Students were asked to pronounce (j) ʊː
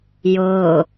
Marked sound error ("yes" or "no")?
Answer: no